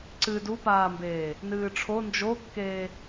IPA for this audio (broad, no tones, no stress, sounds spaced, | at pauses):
ǀ ɨ d u p aː m b eː | n ɨː ʈ͡ʂʰ o n d͡ʒ o kː eː